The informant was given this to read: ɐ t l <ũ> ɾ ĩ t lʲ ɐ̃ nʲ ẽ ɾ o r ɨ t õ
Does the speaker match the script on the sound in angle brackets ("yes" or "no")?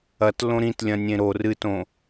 no